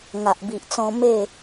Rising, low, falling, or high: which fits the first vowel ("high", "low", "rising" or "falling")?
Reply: low